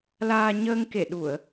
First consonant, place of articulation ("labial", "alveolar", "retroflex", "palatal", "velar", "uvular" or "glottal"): alveolar